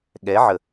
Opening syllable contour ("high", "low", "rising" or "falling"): rising